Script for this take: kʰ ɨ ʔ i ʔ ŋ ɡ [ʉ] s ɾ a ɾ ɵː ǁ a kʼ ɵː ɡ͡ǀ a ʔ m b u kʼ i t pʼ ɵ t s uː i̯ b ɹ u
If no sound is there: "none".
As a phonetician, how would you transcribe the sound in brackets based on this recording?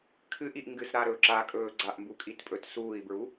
ɨ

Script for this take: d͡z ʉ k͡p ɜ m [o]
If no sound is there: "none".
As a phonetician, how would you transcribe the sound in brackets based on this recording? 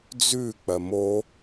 o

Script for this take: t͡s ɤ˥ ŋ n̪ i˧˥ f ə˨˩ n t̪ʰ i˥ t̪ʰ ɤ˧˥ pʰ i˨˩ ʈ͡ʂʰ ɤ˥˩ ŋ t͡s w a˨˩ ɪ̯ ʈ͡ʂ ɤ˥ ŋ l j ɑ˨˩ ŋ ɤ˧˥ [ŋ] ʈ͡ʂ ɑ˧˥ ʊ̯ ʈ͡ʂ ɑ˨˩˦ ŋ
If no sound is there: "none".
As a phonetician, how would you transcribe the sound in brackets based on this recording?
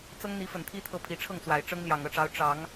none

